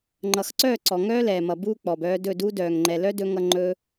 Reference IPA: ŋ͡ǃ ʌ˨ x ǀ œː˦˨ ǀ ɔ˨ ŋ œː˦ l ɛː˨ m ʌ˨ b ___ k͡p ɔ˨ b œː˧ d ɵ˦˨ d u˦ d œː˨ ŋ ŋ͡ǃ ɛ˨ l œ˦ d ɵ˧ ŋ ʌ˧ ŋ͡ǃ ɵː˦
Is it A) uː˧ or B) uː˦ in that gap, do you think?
A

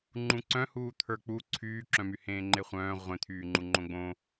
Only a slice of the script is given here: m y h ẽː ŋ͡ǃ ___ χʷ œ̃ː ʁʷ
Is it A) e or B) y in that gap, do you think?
A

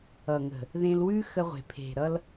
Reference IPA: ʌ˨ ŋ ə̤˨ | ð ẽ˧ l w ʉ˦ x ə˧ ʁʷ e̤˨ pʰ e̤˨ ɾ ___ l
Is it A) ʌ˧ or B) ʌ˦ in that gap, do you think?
A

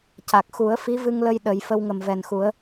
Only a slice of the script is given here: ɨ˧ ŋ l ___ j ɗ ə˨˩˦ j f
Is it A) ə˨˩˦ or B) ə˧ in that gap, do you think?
B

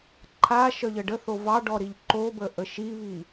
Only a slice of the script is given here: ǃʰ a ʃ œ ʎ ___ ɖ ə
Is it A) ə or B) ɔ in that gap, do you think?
A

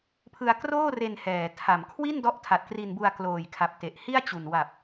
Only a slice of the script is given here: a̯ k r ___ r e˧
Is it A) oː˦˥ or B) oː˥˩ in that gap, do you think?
B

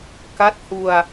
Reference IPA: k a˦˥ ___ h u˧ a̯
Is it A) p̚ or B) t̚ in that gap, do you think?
B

